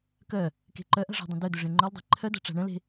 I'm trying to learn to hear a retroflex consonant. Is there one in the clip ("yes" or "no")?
yes